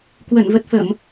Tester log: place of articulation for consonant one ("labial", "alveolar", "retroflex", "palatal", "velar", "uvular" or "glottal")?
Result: velar